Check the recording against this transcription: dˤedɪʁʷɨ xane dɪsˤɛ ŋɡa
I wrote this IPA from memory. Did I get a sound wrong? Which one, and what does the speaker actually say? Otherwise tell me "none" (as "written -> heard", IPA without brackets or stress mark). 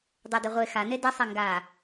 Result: ɨ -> e